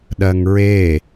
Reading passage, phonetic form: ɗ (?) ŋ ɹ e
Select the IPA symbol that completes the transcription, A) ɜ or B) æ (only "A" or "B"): A